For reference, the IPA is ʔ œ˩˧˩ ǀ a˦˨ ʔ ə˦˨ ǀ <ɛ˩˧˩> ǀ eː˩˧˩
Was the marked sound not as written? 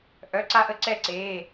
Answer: yes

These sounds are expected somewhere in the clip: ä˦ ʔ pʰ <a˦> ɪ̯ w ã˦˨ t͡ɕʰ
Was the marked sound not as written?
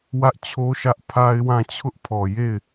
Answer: no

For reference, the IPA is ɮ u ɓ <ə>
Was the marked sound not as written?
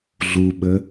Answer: no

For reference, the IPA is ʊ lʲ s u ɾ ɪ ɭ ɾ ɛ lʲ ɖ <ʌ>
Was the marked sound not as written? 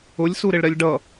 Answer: no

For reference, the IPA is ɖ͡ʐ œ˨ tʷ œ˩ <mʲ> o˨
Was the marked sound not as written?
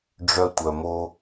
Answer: yes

